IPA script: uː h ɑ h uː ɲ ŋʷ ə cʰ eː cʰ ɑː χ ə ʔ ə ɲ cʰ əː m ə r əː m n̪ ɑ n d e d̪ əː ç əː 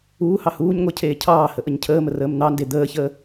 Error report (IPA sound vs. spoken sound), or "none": χ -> h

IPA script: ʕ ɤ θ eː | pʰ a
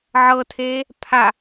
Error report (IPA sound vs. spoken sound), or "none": θ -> tʰ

